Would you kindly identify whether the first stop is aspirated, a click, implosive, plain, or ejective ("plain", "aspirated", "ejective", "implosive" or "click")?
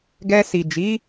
plain